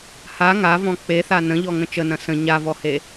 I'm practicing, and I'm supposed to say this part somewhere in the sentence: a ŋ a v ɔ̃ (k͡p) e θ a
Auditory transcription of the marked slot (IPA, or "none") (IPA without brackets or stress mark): k͡p